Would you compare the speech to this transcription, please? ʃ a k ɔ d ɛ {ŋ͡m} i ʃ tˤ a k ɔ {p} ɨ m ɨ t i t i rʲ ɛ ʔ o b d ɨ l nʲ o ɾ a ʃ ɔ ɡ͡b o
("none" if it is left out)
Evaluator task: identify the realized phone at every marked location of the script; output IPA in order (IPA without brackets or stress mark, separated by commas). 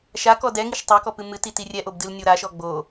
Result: ŋ, p